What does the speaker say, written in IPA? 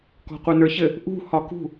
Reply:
k ɔ̤ qʷ ə˞ n ə˞ ç ɘ | ʔ ṳ h ɒ k ṳ

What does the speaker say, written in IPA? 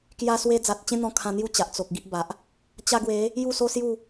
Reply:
k j a˦ s w e˦ d͡z a˨ t̚ t͡ɕ ẽ˦ n̪ ɔ̃˧ kʰ ã˧ n̪ j u˥˧ t͡ɕ a˨ ʔ t͡s o˨ k̚ ɡ i˦ ʔ b a˨ ʔ | t͡ɕ a˧ ɡ w e˨˦ | j u˥˧ s o˦ s j u˥˧

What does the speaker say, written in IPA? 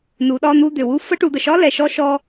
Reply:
n u˩˧ ɗ ɒ˧ n̪ u˧ d̪ ʏ˩ w u˧ f ə˧˥ ʈ u˩˧ d̪ ə˩ ʃ ɒ˧˥ l ɛ˩˧ ʃ ɔ˧˥ ʃ ɔ˧

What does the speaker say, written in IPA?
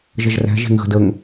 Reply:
ʒ ə ʒ r æ̤ ʒ e̤ ŋ ɣ ə̤ d ə ŋ

